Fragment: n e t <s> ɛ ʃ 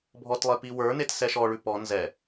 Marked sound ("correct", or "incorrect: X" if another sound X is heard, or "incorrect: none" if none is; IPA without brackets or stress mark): correct